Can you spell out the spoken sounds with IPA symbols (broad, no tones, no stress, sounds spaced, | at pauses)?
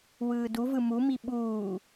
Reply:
w ɯː d u v ɯ m u m i ɓ uː